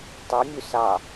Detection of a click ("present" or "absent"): absent